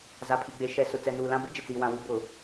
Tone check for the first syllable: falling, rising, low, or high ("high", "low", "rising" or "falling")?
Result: low